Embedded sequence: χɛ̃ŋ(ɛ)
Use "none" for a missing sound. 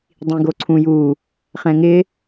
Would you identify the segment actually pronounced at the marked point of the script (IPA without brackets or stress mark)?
ɪ